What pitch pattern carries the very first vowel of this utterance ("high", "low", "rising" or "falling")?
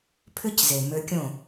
high